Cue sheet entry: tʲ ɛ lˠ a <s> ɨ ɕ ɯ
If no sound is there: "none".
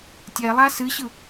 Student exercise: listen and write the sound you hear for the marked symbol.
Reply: s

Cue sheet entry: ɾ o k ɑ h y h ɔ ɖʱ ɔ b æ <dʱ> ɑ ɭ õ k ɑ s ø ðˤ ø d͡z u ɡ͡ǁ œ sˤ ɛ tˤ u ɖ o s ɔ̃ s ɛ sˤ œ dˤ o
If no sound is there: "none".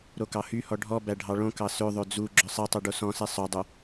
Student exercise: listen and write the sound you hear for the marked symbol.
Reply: ɖʱ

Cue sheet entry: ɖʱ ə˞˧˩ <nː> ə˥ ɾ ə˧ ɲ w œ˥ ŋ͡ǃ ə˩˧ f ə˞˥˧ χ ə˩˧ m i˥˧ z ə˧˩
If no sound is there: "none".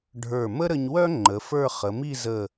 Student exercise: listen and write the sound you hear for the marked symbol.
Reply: m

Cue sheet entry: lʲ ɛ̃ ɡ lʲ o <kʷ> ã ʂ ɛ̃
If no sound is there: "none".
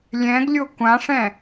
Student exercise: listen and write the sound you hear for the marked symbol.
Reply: kʷ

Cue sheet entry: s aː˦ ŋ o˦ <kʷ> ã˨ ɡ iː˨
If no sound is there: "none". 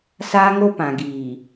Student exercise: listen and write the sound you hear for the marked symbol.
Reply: p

